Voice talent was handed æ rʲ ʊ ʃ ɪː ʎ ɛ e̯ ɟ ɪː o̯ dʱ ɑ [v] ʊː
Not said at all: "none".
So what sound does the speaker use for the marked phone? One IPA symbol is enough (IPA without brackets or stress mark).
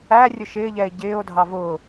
v